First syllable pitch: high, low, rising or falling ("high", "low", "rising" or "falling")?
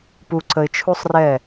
low